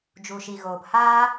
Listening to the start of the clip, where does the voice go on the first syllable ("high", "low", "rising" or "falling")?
low